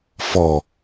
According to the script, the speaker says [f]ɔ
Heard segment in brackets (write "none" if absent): f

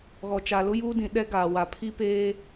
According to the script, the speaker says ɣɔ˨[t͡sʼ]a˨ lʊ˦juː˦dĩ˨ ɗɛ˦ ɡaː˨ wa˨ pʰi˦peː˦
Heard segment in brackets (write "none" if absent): t͡ʃ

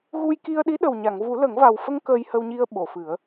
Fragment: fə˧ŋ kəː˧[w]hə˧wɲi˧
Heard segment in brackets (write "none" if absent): j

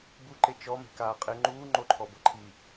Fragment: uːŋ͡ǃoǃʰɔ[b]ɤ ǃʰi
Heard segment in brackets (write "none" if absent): b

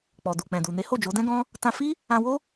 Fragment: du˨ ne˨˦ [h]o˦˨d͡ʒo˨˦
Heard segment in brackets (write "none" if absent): h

